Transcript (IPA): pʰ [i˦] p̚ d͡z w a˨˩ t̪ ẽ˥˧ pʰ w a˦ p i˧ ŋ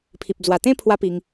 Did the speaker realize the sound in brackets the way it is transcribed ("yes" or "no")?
no